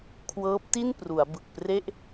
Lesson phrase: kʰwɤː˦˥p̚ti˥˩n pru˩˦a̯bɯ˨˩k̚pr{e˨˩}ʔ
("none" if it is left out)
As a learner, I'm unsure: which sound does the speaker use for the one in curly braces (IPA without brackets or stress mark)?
e˥˩